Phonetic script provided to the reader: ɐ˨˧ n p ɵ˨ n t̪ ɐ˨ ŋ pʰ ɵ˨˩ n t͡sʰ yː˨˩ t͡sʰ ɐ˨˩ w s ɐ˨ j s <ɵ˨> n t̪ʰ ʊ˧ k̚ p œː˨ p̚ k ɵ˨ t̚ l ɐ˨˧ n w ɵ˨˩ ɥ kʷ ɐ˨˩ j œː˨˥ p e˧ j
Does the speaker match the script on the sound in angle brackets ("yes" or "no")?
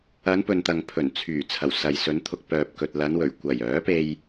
no